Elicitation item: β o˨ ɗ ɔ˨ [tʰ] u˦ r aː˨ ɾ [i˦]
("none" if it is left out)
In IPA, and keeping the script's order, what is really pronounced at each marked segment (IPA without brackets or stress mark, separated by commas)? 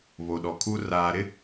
kʰ, ɪ˦